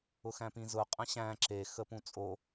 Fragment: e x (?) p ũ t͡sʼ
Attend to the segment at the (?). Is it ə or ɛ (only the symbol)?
ə